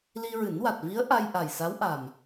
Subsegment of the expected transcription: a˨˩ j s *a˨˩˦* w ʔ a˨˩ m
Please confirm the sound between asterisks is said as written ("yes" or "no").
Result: no